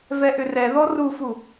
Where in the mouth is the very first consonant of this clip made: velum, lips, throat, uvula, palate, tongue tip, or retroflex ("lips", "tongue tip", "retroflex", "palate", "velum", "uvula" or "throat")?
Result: lips